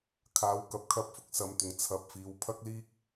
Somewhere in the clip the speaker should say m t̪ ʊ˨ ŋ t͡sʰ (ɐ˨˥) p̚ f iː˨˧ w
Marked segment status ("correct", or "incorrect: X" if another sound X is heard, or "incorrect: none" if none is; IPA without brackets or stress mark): correct